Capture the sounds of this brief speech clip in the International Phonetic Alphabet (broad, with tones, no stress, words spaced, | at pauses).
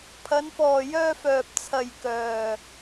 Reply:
pʰɐ˨˧nfɔː˨jœː˧fœː˨p̚ t͡sʰɐ˨jkœː˨